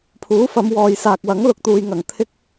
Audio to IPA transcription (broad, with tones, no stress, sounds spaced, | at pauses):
pʰ uː˨˥ f ɐ˨˧ m w ɔː˨ j s aː˨ k̚ w ɐ˨˥ ŋ l ʊ˧ k̚ t̪ uː˨ j ŋ ɐ˨˩ ŋ t̪ʰ ɪ˥ k̚